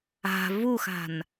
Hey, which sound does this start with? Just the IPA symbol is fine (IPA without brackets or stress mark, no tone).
a̤